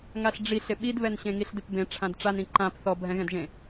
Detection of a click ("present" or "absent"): present